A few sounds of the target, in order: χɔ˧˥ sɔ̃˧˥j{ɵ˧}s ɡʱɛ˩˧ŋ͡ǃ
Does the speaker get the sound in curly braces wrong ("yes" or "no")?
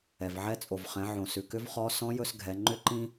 no